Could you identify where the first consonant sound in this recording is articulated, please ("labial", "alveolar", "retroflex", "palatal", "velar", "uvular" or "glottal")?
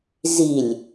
alveolar